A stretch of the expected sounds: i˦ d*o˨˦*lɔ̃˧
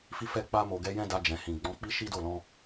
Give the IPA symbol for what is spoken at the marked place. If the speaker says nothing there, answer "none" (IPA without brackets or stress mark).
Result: o˦˨